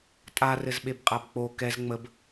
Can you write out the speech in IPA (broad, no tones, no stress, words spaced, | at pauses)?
tʼarɘzɓebqʼab k͡po kɛz ŋ͡məb